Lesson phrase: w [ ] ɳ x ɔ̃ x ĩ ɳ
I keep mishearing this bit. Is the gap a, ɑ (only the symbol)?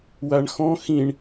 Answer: a